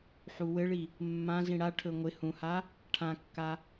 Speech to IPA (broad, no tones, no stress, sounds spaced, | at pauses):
ħ u w ɘ ɭ i | mː ã z ĩ ɽ a ʈʰ ɵ ŋʷ ɪ h ũ h a | ʈʰ ã kː a